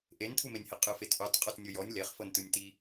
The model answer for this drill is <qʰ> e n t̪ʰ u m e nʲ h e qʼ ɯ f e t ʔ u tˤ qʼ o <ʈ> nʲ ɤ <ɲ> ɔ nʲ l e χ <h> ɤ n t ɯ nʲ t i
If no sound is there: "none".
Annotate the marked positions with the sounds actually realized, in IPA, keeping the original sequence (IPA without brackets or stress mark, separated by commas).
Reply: ʔ, t, j, f